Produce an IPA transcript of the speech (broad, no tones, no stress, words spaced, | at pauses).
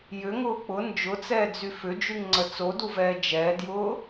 jʏŋʊː k͡pʊ nd͡ʒʊt͡sɛːd͡zy fʏd͡ʒyŋŋ͡ǀə t͡soduvɛː d͡ʒɛːdjʊː